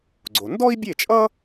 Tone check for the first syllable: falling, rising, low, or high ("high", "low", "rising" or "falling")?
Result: low